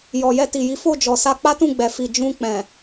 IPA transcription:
j ɔ˨ j ɛ˧ t i˨ j i˨˦ f o˦˨ d͡ʒ ɔ˨ s a˧ k͡p a˦ t ũ˦˨ ɡ͡b ɛ˨ f i˨ d͡ʒ ũ˧ k͡p ɛ̃˨

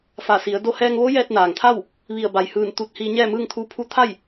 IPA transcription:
f a˧˩ s i˩˧ ə̯ d o˧ h ɛː˧ ŋ ʋ o˧˥ j ɛː˧ t̚ n aː˩ ŋ t̪ʰ a˥˨ w | ʋ i˧˩ ə̯ b a˩ j h ɯː˧˩ n t̪ u˧˩ t̚ h iː˧ ɲ ɛː˥˨ m ɯː˥˨ ŋ t̪ʰ uː˧ pʰ u˧˥ t̪ʰ a˥˨ j

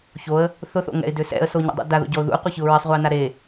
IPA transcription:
ç o ə̯ | θ ʊ θ o̰ ŋ ɛ̰ ɪ̯ d ʏ s ɛ̰ ə̯ s o ɲ a̰ dˤ ṵ d a ð o̰ ɟ ɔ ʊ̯ ð ṵ ə̯ qʷ ɛ ç ɯ ʊ̯ ɹ e sˤ ʁʷ a ɪ̯ n a ɾ e

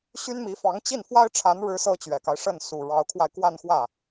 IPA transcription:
ɕ y˥ n m i˧˥ f ɑ˧˥ ŋ t͡ɕ i˥˩ n f w a˥ ɪ̯ ʈ͡ʂʰ a˧˥ n ɻ ɻ̩˧˥ s ɤ˥ t͡ɕ ɥ ɛ˨˩ k a˦ ɪ̯ ʂ ə˥˩ n s u˨˩ ɻ ɑ˧˥ ʊ̯ kʰ w a˧ ɪ̯ k w a˥˧ n x w ä˥˩

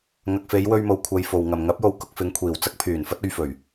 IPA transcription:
ŋ ɐ˨ k̚ f e˨˧ j w ɵ˧ ɥ m o˨ w kʷʰ ɐ˧ j f o˨ w ŋ ɐ˨ m ŋ ɐ˨˥ p̚ j o˨˧ w k ʊ˧ k̚ f ɪ˨˧ ŋ kʷʰ iː˨˩ w t͡s ɐ˥ k̚ pʰ yː˨˩ n f ɐ˥ t̚ ɵ˧ ɥ f ɵ˨˩ ɥ

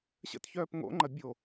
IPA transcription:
ɕ ə̰ t ç œː p ŋ o̰ ŋ͡ǃ ɐ bʲ o

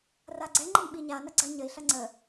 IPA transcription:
r a ɡ͡ǀ ɛ ŋ͡ǃ ə n ɓ i ɲ a n ɐ ɡ͡ǀ ɐ ɲ ə i̯ ɬ ɐ ŋ͡ǀ ə

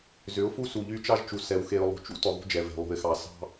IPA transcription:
z ʏ˨˦ ʊ̯ f u˦ s u˨ ʎ y˦ t͡ʃ ɑ˦ ʒ t͡ʃ u˨ s ɛ˨ w x e˨ ʊ̯ lˠ ṳ˨ t͡ʃ ṵ˦ t ʏ˨ ðˤ ṳ˦ d͡ʒ ɛ˨ v e̤˨ lˠ ṳ˨ ɪ̯ x ɑ˨ s ɑ̤˦

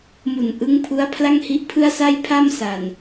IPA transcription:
m u˨˩ n ʔ ɯ˦˥ ŋ pʰ u˦˥ a̯ pʰ l a˥˩ ŋ h i˦˥ ʔ pʰ ɯ˥˩ a̯ s a˥˩ j pʰ a˥˩ m s a˨˩ n

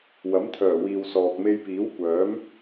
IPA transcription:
w ɐ˨˥ m t̪ʰ œː˨˩ w iː˨ w s ɔː˨ k̚ m e˧ j p iː˨˥ w kʷ œː˨˥ m

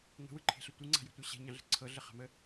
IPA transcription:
ŋ ə̤ w ɯ ǃʰ e̤ ɬ ə tʷ ɯ ŋ͡ǀ a̤ j ɛ̤ tʷ ə˞ ɕ ɛ̤ ɲ ɑ̃ ɮ ə̤ ǀʰ ɤ ɮ ə χ a̤ m ə

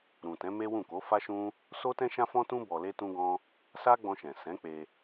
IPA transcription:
ɾ ũ˨ t ɛ̃˨˦ m e˦ w ũ˦˨ k o˨˦ f a˦ ʃ ũ˦ | s o˦ t ɛ̃˦ ʃ ã˦ f ɔ̃˦ t ũ˦ b ɔ˧ l e˦ t ũ˦ ɡ ɔ̃˦ | s a˦ ɡ͡b ɔ̃˧ ʃ ɛ̃˨ s ɛ̃˨˦ k͡p e˧

